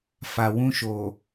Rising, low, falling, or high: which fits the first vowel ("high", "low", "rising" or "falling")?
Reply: low